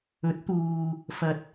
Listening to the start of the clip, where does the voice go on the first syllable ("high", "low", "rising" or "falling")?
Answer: rising